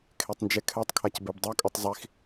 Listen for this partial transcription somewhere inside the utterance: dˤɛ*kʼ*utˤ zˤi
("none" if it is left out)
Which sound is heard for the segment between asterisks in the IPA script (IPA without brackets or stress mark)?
kʼ